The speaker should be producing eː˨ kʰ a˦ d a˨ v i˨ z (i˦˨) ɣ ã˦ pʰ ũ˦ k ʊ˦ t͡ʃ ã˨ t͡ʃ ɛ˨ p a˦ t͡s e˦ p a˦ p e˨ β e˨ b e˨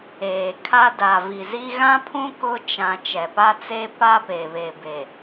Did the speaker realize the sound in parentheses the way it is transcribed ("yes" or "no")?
no